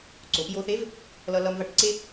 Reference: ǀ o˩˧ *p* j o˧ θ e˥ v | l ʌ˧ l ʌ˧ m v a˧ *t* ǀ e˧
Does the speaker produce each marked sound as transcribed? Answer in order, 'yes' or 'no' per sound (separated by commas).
yes, no